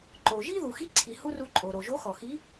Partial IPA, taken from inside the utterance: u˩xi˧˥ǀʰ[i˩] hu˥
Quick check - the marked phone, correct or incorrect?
correct